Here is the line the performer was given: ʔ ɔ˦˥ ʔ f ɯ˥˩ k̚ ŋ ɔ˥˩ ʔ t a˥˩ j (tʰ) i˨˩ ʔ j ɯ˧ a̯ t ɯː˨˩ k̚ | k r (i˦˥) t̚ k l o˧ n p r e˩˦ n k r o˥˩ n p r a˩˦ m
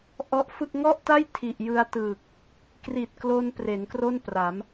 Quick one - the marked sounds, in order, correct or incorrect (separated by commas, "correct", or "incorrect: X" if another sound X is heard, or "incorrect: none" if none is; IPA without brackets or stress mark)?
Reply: correct, incorrect: i˨˩